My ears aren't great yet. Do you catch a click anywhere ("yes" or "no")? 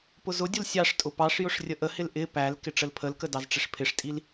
no